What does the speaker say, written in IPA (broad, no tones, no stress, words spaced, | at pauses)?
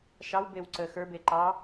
ʃɑwbew ǀə xə˞be ǃɑ